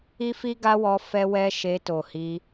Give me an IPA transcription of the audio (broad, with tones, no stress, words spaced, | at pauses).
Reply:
i˦fi˦ɡa˦wɔ˧ fɛ˦wɛ˦ʃe˧ to˨hi˧